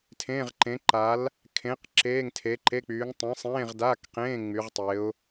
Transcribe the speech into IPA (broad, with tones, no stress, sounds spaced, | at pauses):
tʰ ẽː˧˥˧ ʁ ǃ ẽ˨˥ ǃ a˨˥ l | kʰ ẽ˨˥ q ǁ eː˧˥˧ ŋ tʰ e˨˥ ǃ e˧˥˧ k͡p yː˨˥ ŋ tˤ ẽ˨˥ sˤ ẽː˧˥˧ ʁ d a˧˥˧ k q ẽː˧˥˧ ŋ͡m y˨˥ ʁ tˤ e˨˥ ʊ̯